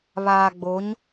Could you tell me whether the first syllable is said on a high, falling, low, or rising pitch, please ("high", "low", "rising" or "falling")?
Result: low